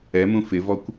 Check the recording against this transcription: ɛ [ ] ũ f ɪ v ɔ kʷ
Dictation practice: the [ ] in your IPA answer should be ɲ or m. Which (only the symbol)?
m